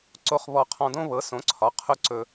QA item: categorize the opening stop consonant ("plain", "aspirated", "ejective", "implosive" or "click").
click